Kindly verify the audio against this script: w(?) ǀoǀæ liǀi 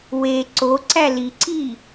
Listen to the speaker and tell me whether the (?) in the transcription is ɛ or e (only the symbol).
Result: e